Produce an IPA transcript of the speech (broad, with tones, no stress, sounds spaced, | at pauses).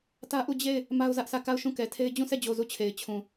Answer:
t ä˦ ʔ u˦˨ d͡ʑ e˦˨ ɪ̯ | m a˦ ʊ̯ z ä˦ ʔ s ä˦˨ k a˦˨ ʊ̯ ʃ ũ˦˨ k ɛ˨ tʰ e˦ ɪ̯ d͡ʑ ũ˦˨ s ɛ˦˨ d͡ʑ o˨ z u˦˨ t͡ɕʰ e˨ ɪ̯ t͡ɕʰ ũ˨